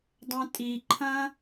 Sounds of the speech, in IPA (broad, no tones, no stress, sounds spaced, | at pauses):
dˤ ɐ̃ tʼ i ǃʰ ɐ̃